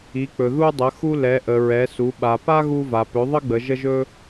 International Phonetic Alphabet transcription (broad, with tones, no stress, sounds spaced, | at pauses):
i˩˧ k͡p ɵ˩ ð u˧ dˤ ə˩˧ x u˧ l ɛ˩˧ ʔ ə˩ ɹ ɛ˩˧ s u˩˧ ɓ a˩ p a˥ ɣ u˧ v a˩ p ɵ˩˧ ðˤ ə˥ ɡ͡b ə˩˧ ʒ ə˧ ʒ ɵ˧